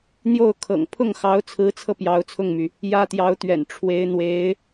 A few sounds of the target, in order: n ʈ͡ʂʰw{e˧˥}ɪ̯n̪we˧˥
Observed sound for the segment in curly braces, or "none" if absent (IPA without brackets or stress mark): e˧˥